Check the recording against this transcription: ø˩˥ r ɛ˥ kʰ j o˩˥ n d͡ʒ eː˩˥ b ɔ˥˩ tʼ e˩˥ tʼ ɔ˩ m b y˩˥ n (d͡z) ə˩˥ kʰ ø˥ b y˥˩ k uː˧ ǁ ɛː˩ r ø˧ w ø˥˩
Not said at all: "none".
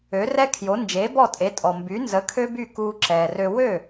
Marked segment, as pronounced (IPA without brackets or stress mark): z